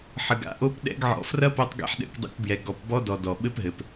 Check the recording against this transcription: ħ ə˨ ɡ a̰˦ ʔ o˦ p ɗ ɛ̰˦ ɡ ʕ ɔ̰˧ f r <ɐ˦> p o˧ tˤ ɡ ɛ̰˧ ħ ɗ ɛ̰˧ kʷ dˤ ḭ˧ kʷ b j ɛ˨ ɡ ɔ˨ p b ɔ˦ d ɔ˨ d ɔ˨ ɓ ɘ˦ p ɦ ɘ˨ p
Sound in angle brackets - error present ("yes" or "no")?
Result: no